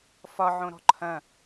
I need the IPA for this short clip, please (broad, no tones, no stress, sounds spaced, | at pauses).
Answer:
f ɒ ʕ õ ɾ ɔ̤ ǃʰ ɐ̃